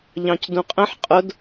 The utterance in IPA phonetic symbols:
ʎ ɑ̃ c d ũ qʼ ə̃ ħ qʼ ʊ d

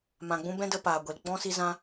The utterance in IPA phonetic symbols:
m ã˨ ɡ͡b ũ˧ b ɛ̃˦ d ə˧ p aː˨ ɡʷ e˨ l ɡ͡b ɔ̃˦ s i˦ z ã˦

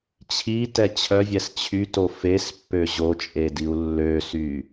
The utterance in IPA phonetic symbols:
t͡ɕʰ i t ɛ t͡ɕʰ œ vʲ ɛ s t͡ɕʰ y t o f e s pː ø ʑ o t͡ʃʼ e d i u̯ lː ø s y

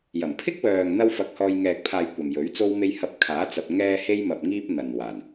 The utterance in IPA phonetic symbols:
j ɐ˨˩ m pʰ ɪ˥ k̚ w œː˨ ŋ n̪ ɐ˥ w f ɐ˧ k̚ h ɔː˧ j ŋ ɛː˨ k̚ pʰ aː˨ j kʷ ɐ˨ m j ɵ˨˥ ɥ t͡s o˥ w m e˥ j h ɐ˧ p̚ kʰ aː˨˥ t͡s ɐ˨ p̚ ŋ ɛː˧ h e˧ j m ɐ˨ p̚ ŋ iː˥ p̚ n̪ ɐ˨ n w aː˨˩ n

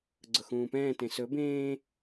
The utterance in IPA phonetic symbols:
ɡ͡ǀ ʊ x ũː p ɛ̃ː t ẽ s ɵ b ẽː

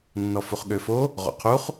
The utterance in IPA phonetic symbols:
nː ɔ f u χ ɠ ø f o | ʁ o̰ qʰ u χ

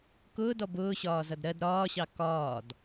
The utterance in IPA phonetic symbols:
k ʊː d ɔ b ʊː ɕ ɒː z ʌ d ɾ ɜ d ɾ ɒː ɕ ɑ k ɒː d

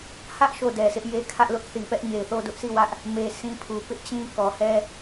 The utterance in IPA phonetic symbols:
h ä˦ ʔ ʃ o˦˨ d ɛ˨ sʰ ɪ˦ ʔ j e˦ kʰ ä˦ ʔ l ʊ˦ ʔ θ i˨ p ɛ˦ ʔ ɲ e˨ ɪ̯ θ o˦˨ d ʊ˦ ʔ s i˦˨ w ä˦ ʔ | m e˦ s ĩ˦ pʰ u˨ p ɪ˦ ʔ t͡ɕ ĩ˦ k ɔ˨ h ɛ˦

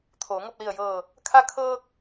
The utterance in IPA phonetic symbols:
t̪ʰ oː˩˧ ŋ o˥˨ p̚ l i˧˩ ə̯ j ɤː˧˩ | kʰ a˧ kʰ ɤː˧ k̚

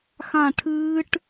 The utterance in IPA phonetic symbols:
x ã˦˨ ʈʰ ɨː˦˥ ʈ

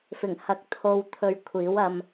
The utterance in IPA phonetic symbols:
f ɪ˨˩ ŋ h ɐ˨˥ k̚ t̪ʰ o˧ w t̪ʰ ɵ˧ ɥ kʷʰ iː˨˥ w ɐ˧ m

